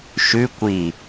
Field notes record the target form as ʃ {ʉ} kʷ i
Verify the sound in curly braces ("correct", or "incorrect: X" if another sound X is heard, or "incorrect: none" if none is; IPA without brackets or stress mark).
correct